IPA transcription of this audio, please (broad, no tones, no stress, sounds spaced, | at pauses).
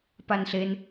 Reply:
p a n ɬ e n